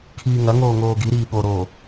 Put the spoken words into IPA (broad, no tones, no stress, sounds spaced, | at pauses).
kʰ iː ŋ ɐ ŋ oː ŋ oː ɡ i ɾ iː ɠ o ɾ oː